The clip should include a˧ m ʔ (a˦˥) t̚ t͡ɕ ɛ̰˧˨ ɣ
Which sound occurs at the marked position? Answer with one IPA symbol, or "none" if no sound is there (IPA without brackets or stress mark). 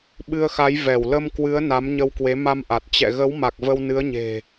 a˨˩